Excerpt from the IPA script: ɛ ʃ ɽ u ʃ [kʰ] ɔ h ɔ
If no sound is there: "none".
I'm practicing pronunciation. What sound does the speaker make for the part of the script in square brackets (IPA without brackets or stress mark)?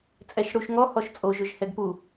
ŋ